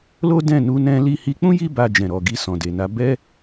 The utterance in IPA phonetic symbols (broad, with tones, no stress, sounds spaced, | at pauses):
l o˦ d ɛ̃˦˨ n u˧ n ɛ̃˧ l i˧ h i˧ k͡p ũ˦ j i˧ b a˨ d͡ʒ ɛ̃˨ ɾ ɔ˨ ɡ i˧ s ɔ̃˨ d e˨ n a˧ b ɛ˦